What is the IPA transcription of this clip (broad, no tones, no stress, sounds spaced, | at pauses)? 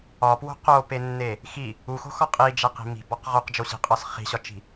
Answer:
ɒ p w o̤ q o p e nː e | x i | u x o̤ x ɒ qʼ i d͡ʒ æ q i̤ m i̤ b ɒ q ʁ o q d͡ʒ o ɕ i̤ qʼ ɒ s χ i̤ ɕ ɒ t͡ʃ i̤